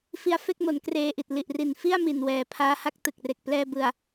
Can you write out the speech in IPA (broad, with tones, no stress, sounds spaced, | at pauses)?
f i˦˥ a̯ f e˥˩ k̚ m o˩˦ n k r eː˧ ʔ i˨˩ t̚ l i˨˩ ʔ r i˨˩ n f i˥˩ a̯ m i˨˩ n w ɛː˨˩ pʰ aː˦˥ h a˥˩ k̚ t ɯ˨˩ k̚ r e˨˩ k̚ p l ɛː˧ b ɯ˨˩ a̯